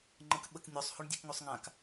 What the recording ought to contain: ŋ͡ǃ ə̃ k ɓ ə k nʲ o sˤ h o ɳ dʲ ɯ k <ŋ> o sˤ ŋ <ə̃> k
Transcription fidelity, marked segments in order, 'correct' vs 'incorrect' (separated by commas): correct, incorrect